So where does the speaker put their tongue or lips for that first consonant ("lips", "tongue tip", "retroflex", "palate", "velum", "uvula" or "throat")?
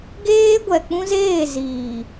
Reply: velum